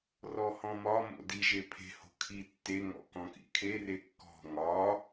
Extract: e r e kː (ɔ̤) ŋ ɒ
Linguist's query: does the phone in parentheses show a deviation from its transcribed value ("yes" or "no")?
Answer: no